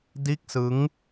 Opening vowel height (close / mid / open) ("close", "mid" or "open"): close